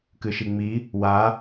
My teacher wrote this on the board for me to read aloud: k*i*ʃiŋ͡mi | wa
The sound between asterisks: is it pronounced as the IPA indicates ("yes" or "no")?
no